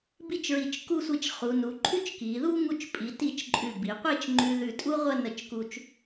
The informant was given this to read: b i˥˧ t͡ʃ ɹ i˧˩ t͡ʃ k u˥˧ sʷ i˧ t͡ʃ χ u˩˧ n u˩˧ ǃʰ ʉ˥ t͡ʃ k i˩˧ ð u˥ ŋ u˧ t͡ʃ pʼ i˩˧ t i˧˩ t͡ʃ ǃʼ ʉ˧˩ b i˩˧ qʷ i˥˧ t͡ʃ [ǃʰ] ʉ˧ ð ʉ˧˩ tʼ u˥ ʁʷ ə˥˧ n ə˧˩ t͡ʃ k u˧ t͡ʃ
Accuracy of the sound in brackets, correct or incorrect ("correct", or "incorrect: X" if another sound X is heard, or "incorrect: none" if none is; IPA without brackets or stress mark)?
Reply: incorrect: ŋ͡ǃ